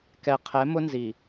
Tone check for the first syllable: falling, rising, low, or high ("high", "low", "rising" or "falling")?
low